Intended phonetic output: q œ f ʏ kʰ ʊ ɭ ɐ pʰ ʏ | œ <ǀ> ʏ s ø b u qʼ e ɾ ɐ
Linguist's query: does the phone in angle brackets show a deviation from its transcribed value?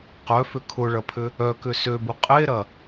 yes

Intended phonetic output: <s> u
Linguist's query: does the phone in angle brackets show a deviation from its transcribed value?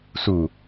no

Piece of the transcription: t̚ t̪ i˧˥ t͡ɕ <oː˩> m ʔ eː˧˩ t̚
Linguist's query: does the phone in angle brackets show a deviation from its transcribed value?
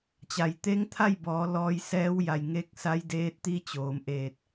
no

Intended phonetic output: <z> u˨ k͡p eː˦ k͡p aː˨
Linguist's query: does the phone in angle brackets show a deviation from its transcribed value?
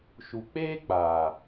yes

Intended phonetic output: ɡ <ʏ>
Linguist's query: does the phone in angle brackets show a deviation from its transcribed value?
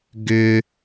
no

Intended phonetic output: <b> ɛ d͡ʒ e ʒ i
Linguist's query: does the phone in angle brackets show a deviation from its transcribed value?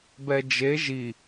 no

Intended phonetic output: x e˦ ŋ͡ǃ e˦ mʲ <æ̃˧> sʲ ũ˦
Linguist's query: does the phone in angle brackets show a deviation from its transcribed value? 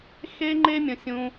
yes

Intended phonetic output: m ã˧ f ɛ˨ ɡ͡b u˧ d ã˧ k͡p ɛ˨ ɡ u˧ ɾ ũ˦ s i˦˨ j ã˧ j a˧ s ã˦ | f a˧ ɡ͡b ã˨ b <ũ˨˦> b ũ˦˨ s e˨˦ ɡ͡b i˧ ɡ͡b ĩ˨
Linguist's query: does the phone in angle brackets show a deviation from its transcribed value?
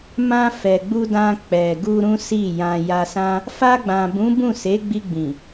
no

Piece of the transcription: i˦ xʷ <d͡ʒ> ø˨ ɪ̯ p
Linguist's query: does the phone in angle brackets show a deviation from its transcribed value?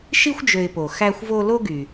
no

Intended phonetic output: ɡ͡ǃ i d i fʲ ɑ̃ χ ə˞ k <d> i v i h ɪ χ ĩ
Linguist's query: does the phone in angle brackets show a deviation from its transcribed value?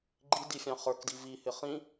no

